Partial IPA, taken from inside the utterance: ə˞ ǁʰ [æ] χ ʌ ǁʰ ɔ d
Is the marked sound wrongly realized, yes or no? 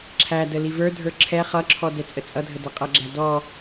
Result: yes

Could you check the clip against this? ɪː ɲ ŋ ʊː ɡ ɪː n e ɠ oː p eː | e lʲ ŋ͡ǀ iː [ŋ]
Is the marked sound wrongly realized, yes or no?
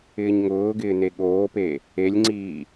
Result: yes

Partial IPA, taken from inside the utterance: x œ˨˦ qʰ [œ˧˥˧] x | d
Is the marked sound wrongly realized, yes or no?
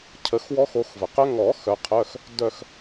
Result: no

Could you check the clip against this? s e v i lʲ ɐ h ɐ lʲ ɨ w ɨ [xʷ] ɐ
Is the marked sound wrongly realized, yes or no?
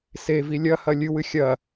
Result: yes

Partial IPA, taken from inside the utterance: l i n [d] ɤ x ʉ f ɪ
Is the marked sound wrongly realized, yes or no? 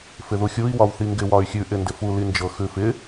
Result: yes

